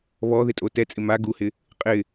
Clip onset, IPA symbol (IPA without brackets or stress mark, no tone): β